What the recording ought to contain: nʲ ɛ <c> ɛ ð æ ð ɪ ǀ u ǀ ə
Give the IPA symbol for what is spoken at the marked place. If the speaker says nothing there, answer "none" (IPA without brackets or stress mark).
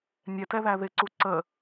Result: t